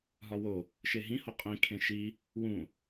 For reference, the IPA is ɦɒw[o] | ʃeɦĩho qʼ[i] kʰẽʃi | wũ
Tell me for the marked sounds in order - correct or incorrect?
correct, incorrect: ĩ

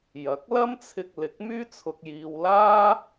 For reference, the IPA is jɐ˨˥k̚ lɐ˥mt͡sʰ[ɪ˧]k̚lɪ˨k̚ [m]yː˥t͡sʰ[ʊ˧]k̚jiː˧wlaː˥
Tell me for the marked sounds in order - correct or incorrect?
correct, correct, correct

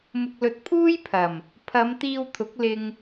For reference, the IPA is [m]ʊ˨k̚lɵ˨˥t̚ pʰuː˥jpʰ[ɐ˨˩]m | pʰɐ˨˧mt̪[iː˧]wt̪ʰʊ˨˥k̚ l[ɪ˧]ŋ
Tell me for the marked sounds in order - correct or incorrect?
correct, correct, correct, correct

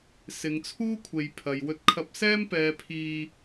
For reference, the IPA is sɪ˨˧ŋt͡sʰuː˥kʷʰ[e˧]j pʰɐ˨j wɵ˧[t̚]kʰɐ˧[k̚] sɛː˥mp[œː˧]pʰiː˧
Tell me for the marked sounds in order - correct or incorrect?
incorrect: e˨, correct, incorrect: p̚, incorrect: ɛː˧

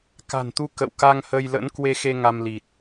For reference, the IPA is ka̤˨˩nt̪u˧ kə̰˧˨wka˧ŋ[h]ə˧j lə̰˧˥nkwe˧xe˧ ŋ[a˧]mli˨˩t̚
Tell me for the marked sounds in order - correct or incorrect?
correct, correct

